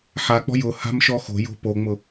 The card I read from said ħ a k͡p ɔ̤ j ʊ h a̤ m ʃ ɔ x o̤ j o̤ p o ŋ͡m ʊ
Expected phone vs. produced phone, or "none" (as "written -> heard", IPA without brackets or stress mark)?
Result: none